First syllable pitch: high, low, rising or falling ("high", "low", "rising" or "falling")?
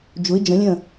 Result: rising